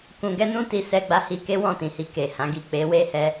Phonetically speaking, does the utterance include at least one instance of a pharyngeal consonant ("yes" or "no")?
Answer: no